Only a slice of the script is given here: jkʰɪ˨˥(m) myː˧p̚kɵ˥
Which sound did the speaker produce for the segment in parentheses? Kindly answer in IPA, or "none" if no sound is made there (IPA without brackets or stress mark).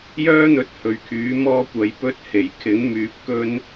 ŋ